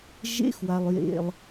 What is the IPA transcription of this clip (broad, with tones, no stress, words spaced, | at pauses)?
ʒḛ˦xwa˨lˠjḛ˨lˠ